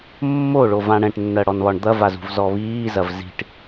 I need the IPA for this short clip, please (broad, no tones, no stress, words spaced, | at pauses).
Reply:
mːoɭo vãɽɛ̃ʈnːɜ ɽɔnβɒɳd̪ɐvaz ṳvzɔβiːzɐv zi̤ʈ